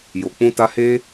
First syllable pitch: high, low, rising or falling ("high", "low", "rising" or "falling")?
low